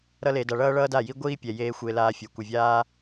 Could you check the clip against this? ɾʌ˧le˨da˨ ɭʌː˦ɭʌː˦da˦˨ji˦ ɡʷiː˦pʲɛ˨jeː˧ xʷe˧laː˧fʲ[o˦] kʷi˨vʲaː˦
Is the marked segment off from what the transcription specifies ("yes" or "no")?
yes